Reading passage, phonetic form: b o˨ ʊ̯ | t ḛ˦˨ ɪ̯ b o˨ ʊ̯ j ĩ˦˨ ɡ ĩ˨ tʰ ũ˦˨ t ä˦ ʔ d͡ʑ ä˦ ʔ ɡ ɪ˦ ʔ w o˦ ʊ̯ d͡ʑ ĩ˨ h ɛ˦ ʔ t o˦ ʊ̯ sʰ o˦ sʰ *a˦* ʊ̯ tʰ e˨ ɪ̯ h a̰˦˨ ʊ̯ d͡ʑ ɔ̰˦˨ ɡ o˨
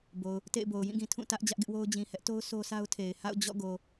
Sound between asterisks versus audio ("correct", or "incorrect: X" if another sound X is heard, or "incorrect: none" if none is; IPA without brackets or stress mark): correct